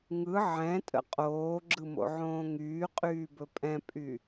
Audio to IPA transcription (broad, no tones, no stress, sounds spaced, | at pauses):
ŋ ɯ ʕ ɛ̃ tʼ ə̰ qʼ oː ɡ͡ǁ ɯ m o̰ ʕ õː ŋ yː qʼ yː b ɵ pʼ ɛ̃ pʼ y